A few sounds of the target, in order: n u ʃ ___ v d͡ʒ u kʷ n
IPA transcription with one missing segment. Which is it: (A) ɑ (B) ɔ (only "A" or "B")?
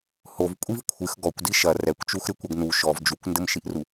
B